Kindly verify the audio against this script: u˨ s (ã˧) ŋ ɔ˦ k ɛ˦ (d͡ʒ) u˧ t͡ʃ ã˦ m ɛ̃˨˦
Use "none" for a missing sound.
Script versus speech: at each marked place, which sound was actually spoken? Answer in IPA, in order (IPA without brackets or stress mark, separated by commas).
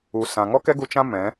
ã˨, ɡ